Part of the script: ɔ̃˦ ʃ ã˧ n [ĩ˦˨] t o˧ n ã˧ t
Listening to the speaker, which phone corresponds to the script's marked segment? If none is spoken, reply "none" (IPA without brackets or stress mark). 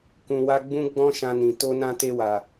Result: ĩ˨